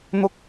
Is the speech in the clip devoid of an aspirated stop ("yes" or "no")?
yes